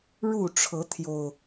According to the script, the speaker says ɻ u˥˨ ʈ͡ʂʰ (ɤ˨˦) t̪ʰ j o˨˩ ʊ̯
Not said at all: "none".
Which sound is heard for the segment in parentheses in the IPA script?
ɤ˨˦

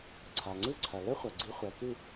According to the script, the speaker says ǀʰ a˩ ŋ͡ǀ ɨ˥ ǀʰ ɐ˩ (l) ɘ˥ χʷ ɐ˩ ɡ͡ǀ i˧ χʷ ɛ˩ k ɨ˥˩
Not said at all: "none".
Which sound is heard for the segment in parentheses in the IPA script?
l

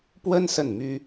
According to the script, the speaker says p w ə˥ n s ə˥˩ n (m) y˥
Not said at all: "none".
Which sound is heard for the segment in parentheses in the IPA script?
m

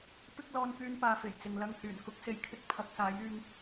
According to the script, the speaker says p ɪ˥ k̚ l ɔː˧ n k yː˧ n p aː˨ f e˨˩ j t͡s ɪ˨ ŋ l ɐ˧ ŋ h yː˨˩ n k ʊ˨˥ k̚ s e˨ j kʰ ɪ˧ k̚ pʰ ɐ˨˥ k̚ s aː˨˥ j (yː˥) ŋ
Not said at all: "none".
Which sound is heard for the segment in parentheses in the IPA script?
yː˧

